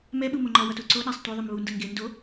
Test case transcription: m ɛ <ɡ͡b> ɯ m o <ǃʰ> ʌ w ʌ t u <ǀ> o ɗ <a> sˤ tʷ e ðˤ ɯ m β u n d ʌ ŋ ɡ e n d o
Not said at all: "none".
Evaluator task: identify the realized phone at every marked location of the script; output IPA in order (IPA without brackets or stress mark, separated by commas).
ɓ, ŋ͡ǃ, ǀ, a